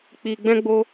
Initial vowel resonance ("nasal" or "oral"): oral